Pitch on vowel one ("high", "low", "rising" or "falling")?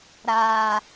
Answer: low